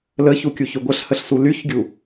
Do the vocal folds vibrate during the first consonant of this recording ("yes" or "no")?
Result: yes